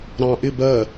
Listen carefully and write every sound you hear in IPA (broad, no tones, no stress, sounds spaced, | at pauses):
ɾ ɑ̃ ʔ ɪ b ɜ